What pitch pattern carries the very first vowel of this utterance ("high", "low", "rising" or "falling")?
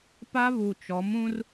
high